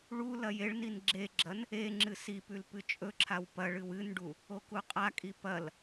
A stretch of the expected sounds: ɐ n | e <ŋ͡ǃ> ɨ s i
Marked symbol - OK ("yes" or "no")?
no